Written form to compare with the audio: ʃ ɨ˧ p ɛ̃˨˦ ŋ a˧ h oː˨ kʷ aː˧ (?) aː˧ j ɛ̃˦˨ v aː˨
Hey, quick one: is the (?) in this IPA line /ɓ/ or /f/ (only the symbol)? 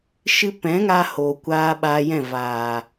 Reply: ɓ